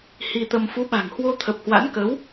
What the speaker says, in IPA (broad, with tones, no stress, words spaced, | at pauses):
hi˧t̪ə˧m fu˨˦ɓa̤˨˩ŋ hwo˧t̪ʰə˨˩p̚hwa̰˧˥n kə˨˦w